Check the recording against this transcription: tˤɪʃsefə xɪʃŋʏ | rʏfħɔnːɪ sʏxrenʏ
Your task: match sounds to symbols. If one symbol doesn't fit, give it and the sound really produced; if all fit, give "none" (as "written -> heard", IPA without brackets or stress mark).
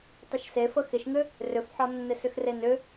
none